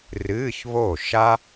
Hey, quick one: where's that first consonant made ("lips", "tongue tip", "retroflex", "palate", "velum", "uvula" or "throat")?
tongue tip